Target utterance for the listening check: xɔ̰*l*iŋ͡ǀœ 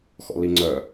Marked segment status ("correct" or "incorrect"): correct